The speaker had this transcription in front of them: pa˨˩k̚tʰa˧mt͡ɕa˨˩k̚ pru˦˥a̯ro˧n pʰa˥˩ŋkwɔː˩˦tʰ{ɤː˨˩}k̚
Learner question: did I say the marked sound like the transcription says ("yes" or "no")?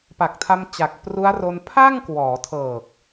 yes